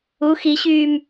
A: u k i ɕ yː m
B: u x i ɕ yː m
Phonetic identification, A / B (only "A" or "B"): B